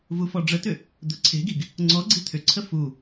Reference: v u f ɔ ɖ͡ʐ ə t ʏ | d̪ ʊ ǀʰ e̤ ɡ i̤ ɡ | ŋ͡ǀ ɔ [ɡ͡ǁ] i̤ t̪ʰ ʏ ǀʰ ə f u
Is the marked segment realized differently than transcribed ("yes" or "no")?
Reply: yes